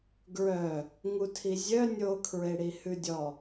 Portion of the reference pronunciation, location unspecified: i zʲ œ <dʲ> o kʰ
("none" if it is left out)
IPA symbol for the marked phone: nʲ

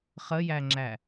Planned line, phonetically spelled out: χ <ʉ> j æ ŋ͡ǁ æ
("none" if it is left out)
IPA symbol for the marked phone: ə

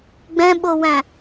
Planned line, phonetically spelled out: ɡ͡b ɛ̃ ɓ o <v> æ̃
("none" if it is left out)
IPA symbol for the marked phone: w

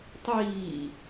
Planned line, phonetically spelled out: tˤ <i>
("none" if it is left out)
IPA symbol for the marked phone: iː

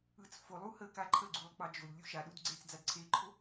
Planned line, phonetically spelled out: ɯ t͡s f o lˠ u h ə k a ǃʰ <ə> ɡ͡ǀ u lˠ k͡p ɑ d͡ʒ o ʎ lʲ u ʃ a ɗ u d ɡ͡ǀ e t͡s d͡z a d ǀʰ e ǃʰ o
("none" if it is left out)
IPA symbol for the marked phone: ə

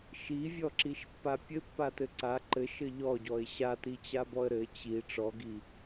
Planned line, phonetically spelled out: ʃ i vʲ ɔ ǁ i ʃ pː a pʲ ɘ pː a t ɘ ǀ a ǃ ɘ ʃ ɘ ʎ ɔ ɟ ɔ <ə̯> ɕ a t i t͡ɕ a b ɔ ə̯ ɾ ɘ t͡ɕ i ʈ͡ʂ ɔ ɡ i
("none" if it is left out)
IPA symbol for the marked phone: ɪ̯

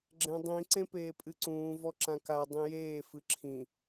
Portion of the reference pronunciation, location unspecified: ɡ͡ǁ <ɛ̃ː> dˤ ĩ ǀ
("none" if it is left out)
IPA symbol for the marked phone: ɛ̃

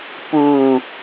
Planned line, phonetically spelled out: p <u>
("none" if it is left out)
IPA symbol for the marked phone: u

